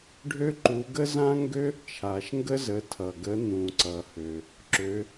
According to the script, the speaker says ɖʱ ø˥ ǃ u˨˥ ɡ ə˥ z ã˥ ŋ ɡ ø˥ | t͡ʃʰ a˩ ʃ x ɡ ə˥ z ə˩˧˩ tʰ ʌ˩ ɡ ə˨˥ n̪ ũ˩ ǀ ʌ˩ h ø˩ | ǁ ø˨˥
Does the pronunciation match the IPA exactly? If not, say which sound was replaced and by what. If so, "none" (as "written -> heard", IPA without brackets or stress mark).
x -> ŋ